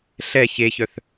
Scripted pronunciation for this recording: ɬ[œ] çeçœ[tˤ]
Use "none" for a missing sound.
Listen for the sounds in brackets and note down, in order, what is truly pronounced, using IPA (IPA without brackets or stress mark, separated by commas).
ɛ, θ